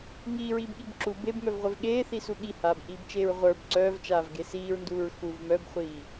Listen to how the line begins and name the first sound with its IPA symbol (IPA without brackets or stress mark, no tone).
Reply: ŋ